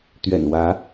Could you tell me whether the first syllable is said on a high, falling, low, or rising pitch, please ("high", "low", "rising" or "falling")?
low